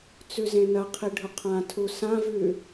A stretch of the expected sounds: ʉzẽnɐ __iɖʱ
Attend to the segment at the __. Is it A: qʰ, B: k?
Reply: A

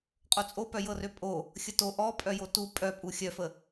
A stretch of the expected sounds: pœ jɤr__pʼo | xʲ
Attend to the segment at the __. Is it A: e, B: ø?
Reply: B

